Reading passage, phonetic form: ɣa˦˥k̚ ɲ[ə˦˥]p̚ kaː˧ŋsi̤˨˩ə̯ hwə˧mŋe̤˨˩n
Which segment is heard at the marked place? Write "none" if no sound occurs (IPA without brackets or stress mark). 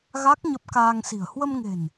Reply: ə˦˥